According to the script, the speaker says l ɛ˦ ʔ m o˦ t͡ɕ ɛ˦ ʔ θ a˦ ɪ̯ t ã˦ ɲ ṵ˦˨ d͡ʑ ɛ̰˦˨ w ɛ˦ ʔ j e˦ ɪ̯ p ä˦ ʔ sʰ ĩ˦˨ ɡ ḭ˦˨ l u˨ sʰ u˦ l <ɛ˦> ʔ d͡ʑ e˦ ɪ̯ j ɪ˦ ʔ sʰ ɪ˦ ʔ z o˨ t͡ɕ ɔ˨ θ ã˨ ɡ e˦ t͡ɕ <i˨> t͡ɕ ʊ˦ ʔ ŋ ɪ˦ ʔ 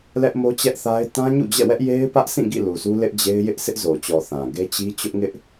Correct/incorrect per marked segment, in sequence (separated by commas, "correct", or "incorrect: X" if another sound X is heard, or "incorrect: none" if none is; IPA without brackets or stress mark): incorrect: ɪ˦, incorrect: i˦